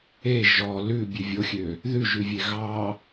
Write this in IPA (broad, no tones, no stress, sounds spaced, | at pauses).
e ʒ ɔ l ʉ bʲ ʉ vʲ o xʲ ø | ð ʉ ʒ ʉ vʲ e ɣ ɑ